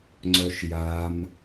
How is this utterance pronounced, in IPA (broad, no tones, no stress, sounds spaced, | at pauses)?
ŋ͡ǀ œ ʃ j a m